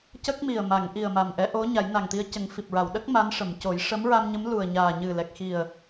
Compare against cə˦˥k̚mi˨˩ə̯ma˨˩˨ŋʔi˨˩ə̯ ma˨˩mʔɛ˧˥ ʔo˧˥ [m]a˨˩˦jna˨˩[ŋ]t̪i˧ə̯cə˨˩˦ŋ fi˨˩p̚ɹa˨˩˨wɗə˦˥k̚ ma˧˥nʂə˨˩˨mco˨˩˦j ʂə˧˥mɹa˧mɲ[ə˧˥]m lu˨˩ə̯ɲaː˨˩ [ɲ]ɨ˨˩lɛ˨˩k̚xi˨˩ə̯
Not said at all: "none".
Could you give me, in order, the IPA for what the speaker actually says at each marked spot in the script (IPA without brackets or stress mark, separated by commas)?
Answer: ɲ, ŋ, ə˧˥, ɲ